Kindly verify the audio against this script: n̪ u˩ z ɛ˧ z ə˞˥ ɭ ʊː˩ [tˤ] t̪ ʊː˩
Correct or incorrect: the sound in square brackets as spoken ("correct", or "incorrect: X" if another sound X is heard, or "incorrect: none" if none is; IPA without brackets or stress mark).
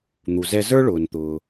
incorrect: n